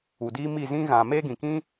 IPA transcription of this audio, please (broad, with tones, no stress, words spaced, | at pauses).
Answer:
u˨ diː˦mi˦˨ zĩ˦ ɣã˨me˦ɡĩ˨kĩ˦